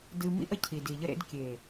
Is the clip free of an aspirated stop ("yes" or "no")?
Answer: no